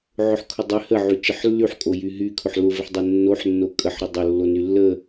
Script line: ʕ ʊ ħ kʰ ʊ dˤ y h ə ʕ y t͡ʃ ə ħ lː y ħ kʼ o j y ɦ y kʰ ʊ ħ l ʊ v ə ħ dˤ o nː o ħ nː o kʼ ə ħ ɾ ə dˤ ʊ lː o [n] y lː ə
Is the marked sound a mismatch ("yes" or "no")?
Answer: no